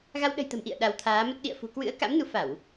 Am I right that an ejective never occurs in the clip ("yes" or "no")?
yes